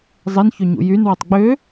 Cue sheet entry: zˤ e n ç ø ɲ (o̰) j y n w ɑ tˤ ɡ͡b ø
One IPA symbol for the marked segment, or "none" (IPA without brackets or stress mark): ṵ